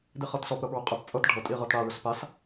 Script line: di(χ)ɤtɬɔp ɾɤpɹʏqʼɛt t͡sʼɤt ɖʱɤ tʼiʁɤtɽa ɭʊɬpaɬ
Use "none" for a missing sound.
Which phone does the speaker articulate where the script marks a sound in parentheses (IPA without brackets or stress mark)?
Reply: χ